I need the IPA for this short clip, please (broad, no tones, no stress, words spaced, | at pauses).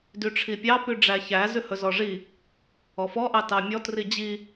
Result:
dyʈ͡ʂʰipʲɑ pyɖ͡ʐæçæ zʉhɵzɔʐi | ɔfɔ ʔɑtɑmʲɔ trid͡ʑi